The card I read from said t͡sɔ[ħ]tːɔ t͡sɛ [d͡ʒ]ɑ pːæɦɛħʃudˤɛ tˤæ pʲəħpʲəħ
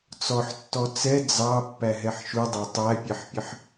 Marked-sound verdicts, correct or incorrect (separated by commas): correct, incorrect